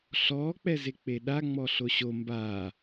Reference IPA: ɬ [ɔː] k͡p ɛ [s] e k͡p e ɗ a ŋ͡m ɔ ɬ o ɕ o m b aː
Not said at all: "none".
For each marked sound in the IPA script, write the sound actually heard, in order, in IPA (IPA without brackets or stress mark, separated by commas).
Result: ɔː, z